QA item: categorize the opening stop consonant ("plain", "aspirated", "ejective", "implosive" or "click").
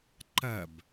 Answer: click